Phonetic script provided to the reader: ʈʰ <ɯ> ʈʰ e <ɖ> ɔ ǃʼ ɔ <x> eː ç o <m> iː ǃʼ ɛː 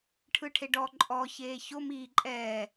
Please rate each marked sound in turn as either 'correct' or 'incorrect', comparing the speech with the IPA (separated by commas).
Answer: correct, correct, incorrect, correct